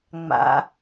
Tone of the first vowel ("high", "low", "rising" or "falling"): rising